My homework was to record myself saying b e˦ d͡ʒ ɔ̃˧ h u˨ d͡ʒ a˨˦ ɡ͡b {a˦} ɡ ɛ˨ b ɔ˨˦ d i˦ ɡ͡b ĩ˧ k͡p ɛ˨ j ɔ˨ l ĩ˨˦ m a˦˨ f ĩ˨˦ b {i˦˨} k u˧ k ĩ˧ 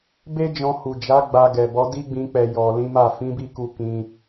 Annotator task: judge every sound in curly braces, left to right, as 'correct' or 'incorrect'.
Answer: incorrect: a˧, correct

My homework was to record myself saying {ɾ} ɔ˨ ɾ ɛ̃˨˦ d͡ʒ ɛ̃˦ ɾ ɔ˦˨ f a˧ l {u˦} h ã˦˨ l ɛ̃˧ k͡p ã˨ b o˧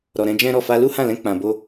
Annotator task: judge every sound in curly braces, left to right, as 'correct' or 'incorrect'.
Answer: correct, correct

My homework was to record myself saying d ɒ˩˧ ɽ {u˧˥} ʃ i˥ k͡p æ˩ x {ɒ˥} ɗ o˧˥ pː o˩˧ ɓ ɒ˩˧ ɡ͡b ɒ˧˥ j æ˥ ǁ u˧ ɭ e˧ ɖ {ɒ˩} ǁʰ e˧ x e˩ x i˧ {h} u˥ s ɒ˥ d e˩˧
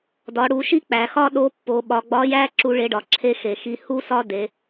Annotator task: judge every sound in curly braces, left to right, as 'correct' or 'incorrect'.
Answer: incorrect: u˩˧, correct, incorrect: ɒ˩˧, correct

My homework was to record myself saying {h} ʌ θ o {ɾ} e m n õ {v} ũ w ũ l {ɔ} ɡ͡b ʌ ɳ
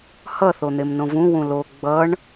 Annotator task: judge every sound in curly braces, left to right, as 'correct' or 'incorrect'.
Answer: correct, incorrect: n̪, correct, incorrect: o

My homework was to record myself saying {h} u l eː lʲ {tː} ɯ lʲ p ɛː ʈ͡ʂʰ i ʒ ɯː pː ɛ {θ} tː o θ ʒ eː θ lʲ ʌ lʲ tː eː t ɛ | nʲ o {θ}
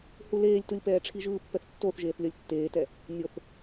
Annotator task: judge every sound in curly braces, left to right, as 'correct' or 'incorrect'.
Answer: correct, incorrect: t, correct, correct

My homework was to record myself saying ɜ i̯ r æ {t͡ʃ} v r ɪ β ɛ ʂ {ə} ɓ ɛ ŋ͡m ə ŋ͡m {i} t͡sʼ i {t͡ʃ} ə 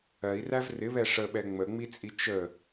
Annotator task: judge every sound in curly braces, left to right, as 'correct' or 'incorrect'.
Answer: incorrect: none, correct, correct, correct

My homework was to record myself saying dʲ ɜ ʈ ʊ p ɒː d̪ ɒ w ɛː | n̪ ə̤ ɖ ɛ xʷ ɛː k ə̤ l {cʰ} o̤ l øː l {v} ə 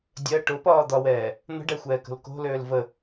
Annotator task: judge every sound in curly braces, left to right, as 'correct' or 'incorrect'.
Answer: incorrect: k, correct

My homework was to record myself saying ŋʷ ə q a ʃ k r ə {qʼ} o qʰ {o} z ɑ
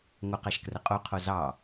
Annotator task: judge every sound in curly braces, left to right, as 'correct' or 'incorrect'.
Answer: correct, correct

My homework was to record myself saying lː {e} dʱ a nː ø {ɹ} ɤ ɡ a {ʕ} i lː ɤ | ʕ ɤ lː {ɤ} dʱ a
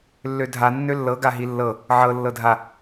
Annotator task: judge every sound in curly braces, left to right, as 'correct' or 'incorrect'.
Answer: incorrect: ø, incorrect: lː, incorrect: ɦ, correct

